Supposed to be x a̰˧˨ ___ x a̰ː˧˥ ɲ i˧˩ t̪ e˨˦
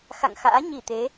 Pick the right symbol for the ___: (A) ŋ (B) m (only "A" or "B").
A